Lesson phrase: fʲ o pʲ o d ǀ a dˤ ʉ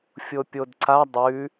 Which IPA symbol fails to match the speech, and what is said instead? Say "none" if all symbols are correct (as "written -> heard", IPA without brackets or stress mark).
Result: none